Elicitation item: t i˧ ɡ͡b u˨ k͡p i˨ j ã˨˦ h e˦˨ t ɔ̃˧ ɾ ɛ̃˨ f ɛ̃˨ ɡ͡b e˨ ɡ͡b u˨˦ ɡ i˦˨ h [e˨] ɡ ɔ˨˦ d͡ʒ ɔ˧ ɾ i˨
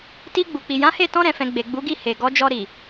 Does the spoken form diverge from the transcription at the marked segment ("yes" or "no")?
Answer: no